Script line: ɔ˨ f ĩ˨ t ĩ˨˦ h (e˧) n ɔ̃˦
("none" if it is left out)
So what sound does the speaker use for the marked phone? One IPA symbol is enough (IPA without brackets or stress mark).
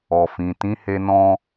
e˦